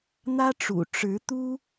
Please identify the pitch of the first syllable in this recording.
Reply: high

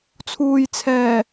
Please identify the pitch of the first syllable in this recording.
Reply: low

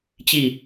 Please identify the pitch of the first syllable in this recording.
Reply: falling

